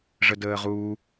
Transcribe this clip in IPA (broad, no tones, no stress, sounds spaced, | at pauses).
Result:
ʐ ə d əː ʁ u